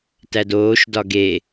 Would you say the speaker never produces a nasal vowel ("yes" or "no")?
yes